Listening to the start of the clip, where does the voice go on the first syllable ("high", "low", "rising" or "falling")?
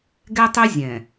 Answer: high